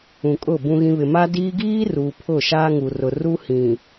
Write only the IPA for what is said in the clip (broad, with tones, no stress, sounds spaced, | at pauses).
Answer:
ũ˨ kʼ ʊ˦˨ b ũ˨ ɣ ĩ˨ β ɪ˨ m a˦ d iː˦ ɡ iː˦ r uː˨ pʰ ʊ˦˨ ʃ aː˦ ŋ u˨ r ʊ˨ r u˦ h ĩ˨